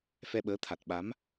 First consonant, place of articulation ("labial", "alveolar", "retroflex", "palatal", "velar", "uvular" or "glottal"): labial